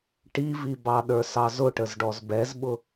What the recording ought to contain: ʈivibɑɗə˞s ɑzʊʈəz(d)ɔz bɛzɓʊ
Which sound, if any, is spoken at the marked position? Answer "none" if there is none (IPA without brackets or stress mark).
ɖ